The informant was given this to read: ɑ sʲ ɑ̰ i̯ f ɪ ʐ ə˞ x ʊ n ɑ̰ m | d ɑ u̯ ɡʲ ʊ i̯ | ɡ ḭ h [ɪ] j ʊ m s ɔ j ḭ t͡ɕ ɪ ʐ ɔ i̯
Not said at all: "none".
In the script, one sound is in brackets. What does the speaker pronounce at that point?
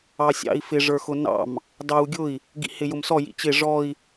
ɪ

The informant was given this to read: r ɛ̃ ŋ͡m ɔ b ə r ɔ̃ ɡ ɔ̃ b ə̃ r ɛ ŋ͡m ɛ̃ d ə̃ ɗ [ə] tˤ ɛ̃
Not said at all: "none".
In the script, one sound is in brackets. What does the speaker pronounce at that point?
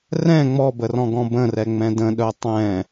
œ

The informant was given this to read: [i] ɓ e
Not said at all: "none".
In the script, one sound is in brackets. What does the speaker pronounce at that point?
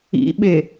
ḭ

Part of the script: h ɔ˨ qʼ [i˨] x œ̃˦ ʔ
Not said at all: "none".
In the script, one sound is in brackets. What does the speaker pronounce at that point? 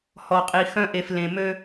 i˨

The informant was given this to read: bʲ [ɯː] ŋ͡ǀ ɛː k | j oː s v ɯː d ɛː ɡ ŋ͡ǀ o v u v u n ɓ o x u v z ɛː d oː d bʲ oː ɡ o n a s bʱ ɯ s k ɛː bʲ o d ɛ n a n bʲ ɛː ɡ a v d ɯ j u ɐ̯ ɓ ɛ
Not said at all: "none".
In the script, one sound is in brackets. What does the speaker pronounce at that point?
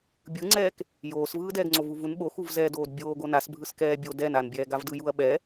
ɯ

